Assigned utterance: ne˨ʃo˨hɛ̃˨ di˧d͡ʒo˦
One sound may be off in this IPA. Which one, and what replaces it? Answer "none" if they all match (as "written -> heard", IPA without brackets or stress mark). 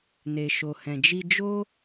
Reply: d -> d͡ʒ